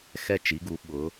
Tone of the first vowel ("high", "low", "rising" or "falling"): falling